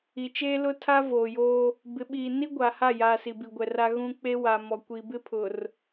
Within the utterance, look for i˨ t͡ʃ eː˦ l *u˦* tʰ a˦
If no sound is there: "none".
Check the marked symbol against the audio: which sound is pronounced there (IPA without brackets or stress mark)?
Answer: ʊ˦